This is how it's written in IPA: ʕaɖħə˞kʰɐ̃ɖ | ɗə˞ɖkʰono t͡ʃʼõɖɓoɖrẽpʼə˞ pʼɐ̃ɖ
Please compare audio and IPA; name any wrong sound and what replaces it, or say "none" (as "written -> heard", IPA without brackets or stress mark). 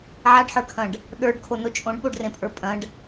none